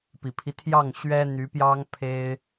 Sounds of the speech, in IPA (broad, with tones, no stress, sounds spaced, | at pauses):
p i˨˩ pʰ i˦ t̪ʰ j ɑ˥˩ ŋ ɕ ɥ ɛ˥ n̪ y˧˥ p j ɑ˥ ŋ pʰ e˥ ɪ̯